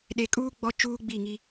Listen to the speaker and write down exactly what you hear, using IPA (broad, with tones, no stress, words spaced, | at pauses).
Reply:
ɗe˨kʼuː˦ ɡ͡bɔ˦t͡ʃuː˦ ɡ͡bi˦˨ŋi˦